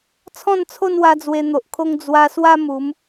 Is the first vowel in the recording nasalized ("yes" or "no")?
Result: yes